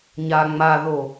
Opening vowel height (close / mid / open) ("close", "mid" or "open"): open